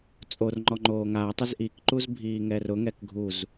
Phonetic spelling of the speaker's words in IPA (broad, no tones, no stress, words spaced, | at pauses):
t͡sʼor ŋ͡ǃɔŋ͡ǃoːŋa tˤɪzʔikǃuz bʱiːŋɛrʊ ŋɛkɡʱuz